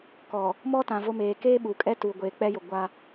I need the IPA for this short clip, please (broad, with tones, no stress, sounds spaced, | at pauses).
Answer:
k ɔ˨ | m ɔ˦ t ã˨ v o˦ m eː˨ k eː˦ ɓ uː˨ kʼ ɛ˦ t uː˨ ɡʷ eː˨ k͡p ɛ˦ j ʊ˨ ɡʷ a˦